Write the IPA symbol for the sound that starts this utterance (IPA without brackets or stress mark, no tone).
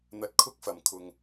n̪